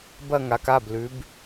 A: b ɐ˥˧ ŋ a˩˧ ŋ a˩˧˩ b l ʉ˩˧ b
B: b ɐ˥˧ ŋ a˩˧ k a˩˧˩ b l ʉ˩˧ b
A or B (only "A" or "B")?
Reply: B